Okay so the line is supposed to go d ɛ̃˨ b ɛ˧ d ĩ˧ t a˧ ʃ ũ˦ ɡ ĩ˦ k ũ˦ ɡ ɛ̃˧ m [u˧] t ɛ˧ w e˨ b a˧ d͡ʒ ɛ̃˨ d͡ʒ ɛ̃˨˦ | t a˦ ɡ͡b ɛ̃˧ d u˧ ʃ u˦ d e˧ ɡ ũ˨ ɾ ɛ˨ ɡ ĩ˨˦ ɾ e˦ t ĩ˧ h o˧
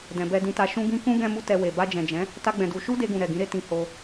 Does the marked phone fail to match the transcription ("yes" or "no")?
no